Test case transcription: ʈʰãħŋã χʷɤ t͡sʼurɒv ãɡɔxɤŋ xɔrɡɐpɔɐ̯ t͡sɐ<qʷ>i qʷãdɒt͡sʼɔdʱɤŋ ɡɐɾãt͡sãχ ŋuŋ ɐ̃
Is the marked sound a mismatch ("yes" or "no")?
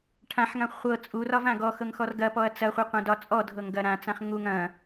yes